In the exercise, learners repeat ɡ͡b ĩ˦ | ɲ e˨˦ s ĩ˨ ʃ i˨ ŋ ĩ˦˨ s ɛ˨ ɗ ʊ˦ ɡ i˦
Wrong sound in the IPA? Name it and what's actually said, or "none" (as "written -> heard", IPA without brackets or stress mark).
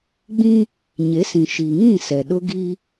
none